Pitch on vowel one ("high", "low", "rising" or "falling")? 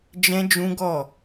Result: high